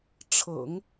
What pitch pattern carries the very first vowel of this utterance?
low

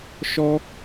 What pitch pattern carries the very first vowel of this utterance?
high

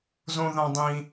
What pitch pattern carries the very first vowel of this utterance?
high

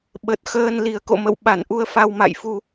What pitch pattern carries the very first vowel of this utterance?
low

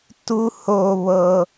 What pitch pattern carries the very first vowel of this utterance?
high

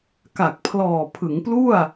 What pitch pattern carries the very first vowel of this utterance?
low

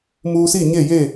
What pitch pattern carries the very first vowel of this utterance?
high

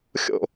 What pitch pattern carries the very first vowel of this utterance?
falling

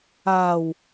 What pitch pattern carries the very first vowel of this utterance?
low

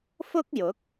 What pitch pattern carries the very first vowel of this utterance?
high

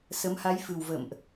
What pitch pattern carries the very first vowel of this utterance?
rising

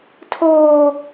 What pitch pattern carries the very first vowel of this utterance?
high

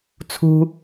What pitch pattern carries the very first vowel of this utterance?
high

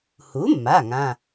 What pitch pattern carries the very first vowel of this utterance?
rising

